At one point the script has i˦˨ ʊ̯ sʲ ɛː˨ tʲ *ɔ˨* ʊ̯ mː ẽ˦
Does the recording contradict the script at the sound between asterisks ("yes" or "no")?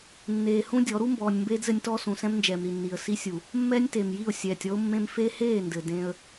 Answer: yes